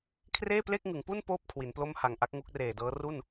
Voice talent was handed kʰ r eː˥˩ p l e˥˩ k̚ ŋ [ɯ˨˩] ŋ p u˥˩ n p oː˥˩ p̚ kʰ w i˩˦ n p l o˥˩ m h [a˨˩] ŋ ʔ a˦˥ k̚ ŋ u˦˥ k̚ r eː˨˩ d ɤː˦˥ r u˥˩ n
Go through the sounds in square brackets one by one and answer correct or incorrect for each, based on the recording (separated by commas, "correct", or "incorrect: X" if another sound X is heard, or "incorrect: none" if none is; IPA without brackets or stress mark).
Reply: incorrect: ɯ˩˦, correct